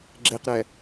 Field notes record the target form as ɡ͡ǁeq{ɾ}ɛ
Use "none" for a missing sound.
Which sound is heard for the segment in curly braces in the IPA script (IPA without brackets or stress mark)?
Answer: ɾ